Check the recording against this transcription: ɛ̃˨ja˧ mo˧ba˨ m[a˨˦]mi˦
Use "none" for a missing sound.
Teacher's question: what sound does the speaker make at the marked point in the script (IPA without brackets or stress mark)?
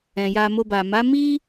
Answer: a˨˦